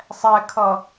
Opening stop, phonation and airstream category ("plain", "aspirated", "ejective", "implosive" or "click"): aspirated